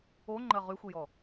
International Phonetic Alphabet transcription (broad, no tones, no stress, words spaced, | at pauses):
oŋ͡ǃɜ ʁyxʷijɔ